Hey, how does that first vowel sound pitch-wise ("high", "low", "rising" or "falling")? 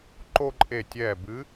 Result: high